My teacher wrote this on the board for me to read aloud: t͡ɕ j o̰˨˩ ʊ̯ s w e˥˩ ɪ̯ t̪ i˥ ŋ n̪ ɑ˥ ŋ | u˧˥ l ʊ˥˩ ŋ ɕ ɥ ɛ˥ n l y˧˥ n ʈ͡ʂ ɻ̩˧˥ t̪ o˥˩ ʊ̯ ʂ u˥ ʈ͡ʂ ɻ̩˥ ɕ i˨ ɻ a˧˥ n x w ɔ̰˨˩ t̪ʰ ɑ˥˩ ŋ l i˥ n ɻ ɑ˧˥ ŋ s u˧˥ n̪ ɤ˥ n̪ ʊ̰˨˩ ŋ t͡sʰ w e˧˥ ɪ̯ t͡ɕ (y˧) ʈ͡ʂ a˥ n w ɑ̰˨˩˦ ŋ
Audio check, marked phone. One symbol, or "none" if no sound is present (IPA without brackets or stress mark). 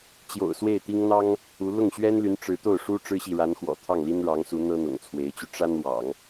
y˧